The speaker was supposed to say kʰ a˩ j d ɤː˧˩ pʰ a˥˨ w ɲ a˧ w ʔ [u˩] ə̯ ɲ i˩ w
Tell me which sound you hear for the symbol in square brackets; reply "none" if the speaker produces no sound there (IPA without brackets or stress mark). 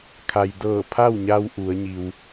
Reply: u˩˧